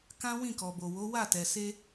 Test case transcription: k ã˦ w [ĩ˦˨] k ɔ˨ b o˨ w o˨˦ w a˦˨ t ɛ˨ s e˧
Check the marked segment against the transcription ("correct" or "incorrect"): correct